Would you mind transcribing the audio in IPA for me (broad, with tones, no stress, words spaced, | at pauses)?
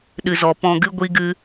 ɗɨ˨zɔ˨pɔ̃˧ɡɨ˦ ɡʷi˦ ɡɨ˦